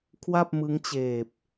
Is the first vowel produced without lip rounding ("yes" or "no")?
yes